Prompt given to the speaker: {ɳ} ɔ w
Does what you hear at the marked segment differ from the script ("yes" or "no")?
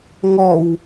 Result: yes